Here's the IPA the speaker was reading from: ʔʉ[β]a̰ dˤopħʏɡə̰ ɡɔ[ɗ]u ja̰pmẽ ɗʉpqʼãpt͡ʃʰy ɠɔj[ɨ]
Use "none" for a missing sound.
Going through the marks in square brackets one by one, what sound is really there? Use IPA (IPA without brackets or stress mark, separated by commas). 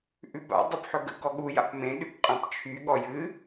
b, ɠ, ɨ